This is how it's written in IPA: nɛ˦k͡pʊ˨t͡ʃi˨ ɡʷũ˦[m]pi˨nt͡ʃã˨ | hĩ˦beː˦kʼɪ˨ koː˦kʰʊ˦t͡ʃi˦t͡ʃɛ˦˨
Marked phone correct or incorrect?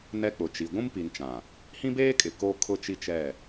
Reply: correct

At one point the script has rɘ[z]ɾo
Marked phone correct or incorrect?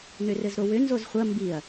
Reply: correct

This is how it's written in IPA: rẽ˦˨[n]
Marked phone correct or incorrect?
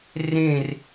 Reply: incorrect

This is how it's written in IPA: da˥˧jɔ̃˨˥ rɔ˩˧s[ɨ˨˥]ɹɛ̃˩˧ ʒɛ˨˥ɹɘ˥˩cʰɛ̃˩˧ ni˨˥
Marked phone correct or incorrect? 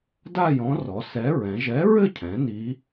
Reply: incorrect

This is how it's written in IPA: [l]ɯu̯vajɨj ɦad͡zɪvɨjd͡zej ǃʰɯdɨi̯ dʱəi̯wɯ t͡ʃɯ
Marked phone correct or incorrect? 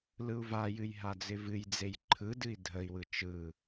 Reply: correct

